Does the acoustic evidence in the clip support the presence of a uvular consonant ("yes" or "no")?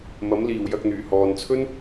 no